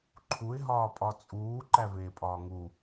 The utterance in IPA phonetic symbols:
ǃʰ u ɪ̯ ɦ ɒː pʼ ɒ t͡sʼ uː ǃ æ v eː pʼ ɒː ŋ u

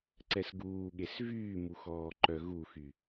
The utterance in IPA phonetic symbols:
ǀ ɛ s ɡ uː ɠ e s v yː m u x ɔː ǃ œ ɣ u x y

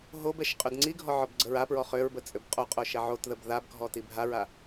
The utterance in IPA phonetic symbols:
ɦ o b ɛ ʃ qʼ ø d ŋ͡ǀ i ɡʱ ɔ ʕ ɔ b ɡ͡ǀ ə ɹ a p ɹ ɔ χ ø ɹ b ə t͡sʼ ø b qʼ o qʼ o ʃ ɛ ʕ o t ð ə b ð a b ɡʱ ɔ t i bʱ a ɹ a

